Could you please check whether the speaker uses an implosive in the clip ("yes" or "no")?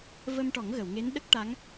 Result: yes